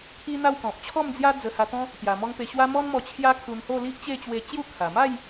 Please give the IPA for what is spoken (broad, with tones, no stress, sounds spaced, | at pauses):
kʰ i˦ n̪ a˥˧ w k ɔ̃˨ p̚ t͡ɕʰ ɔ˥˧ m d͡z j a˦ d͡z ə˧ h a˧ t̪ ɔ̃˦ | t̪ j a˨˩ m ɔ˧ ŋ p e˧ ɕ w a˦ m ɔ˦ n m ɔ˧ t͡ɕʰ j a˦ kʰ u˧ n h o˥˧ l i˦ ʔ t͡ɕ e˥˧ t͡ɕ w e˧ t͡ɕ j u˥˧ kʰ a˨˩ m a˥˧ j